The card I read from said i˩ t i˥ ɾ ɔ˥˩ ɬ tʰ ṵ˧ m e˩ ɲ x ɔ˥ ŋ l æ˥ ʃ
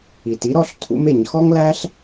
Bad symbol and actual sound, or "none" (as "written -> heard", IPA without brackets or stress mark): ʃ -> ɬ